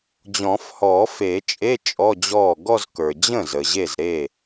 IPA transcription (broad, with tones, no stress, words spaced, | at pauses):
d͡ʑɔ̃˨˩˦fhɔ˨˩˦fe˨˩˦t͡ʃʼe˧˥˧ t͡ʃʼɔ˧˥˧d͡ʑɔ˥˩ ɡɔ˥˧zkə˞˩ d͡ʑə̃˥˩ zə˩ ʑe˥˩zɾe˥˩